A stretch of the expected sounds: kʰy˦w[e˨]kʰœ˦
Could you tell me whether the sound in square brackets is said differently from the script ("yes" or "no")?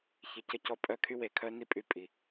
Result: no